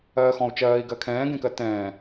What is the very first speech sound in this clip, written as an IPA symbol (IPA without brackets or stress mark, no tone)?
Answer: ɜː